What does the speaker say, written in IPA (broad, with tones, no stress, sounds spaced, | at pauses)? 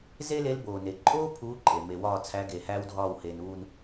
z e˥ l e˧˥ l b oː˩ n e˩ ǃʼ oː˥ pʰ uː˧˥ ǃʼ e˩ m e˩ w ɒː˦˨ t͡sʰ æ˧˥ ɡ e˩ h æː˥ w dʱ ɒː˦˨ w h e˩ n uː˦˨ n